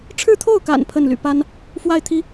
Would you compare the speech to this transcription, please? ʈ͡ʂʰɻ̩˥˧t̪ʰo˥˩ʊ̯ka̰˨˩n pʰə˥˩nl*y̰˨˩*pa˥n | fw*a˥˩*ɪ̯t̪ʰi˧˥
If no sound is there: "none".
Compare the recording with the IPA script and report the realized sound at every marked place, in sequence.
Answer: y̰˨˩, a˥˩

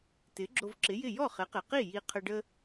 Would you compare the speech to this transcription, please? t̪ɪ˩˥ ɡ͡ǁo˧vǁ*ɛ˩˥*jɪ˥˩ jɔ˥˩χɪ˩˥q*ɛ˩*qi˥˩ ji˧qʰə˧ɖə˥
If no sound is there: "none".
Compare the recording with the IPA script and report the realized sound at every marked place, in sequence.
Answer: ɪ˩˥, ɪ˩

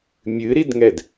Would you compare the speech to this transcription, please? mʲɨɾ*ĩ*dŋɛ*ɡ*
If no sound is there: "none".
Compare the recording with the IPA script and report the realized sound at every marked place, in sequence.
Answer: i, d

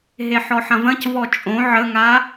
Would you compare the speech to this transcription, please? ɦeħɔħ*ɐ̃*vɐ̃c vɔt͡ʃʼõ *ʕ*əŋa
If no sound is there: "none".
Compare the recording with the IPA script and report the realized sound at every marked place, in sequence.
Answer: ɐ̃, ʕ

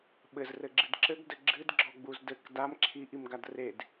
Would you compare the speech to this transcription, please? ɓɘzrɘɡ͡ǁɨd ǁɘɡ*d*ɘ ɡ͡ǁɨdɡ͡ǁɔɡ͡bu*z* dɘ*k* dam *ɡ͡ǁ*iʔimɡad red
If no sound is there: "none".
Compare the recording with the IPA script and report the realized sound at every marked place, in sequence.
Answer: d, z, k, ǁʰ

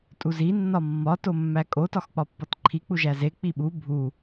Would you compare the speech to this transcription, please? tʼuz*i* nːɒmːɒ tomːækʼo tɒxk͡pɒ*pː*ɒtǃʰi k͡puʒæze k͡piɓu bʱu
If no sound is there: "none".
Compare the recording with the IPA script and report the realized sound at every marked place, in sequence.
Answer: i, pː

